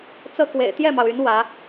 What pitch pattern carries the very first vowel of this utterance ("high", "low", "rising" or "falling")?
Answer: high